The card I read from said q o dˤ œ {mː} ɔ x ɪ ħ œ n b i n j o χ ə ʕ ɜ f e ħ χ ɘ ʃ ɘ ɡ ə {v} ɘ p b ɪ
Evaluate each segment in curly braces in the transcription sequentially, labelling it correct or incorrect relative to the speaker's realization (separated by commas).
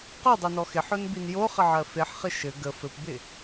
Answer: incorrect, incorrect